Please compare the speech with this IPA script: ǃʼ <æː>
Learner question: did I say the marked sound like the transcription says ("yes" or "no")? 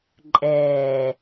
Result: no